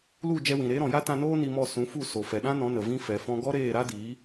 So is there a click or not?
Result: no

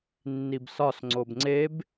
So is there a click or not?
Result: yes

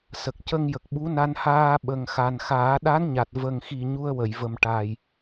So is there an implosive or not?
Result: yes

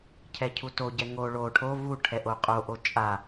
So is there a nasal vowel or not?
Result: no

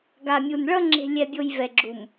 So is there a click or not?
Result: yes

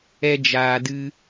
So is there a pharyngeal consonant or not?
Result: no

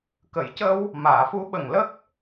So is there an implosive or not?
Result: yes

